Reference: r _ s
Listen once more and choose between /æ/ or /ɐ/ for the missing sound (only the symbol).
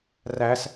æ